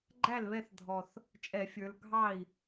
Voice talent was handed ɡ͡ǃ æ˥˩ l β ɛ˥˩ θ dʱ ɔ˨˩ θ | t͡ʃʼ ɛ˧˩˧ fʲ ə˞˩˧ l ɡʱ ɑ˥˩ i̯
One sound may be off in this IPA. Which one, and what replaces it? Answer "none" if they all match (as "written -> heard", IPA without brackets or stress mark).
none